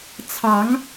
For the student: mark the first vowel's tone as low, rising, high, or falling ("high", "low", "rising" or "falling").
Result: rising